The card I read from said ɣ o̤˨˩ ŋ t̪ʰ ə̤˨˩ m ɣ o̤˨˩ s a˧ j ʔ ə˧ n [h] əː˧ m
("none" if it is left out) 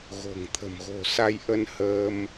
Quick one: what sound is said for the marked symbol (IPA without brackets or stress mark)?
h